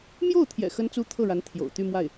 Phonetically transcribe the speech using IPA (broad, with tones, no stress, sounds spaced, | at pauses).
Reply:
m j o˥˩ ʊ̯ t̪ʰ j ɛ̰˨˩ x ə˥ n t͡s u˥ t̪ʰ ɤ˥˩ ɻ a˧˥ n t̪ʰ j o̰˨˩ ʊ̯ t̪ y˥˧ m w a˥˩ ɪ̯